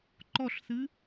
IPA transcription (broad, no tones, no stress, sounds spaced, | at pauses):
ǃ ɔ ɬ θ ɨ